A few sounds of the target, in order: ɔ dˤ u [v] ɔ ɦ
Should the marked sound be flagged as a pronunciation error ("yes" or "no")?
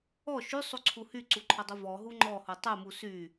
no